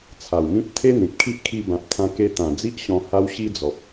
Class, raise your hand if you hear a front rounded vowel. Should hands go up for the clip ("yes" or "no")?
no